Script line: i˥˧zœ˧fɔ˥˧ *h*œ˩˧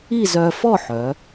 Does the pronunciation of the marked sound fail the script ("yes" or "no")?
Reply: yes